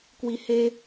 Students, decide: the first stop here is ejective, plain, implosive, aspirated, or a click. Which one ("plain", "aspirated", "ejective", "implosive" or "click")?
plain